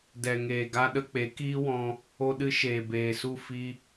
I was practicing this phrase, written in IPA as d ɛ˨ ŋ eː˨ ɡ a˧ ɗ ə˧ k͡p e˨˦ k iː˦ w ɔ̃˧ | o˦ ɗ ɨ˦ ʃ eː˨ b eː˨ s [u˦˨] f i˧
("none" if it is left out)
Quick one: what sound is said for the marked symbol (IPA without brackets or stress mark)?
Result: u˦˨